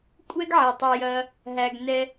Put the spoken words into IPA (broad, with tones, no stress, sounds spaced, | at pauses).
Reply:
kʷʼ ɛ˦ ɡ ʕ ɛ˨ tˤ ɐ˧ j ɐ˧ | ɦ æ˧ ɡ n ɛ˧